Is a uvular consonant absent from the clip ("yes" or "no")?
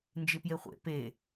no